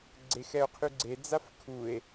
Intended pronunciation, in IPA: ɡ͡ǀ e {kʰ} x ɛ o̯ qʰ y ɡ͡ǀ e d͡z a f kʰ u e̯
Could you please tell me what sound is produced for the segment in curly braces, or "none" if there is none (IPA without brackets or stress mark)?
none